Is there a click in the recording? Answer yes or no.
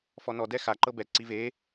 yes